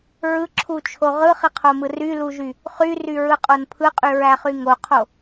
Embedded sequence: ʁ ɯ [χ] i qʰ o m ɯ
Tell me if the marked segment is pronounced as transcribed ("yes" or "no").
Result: yes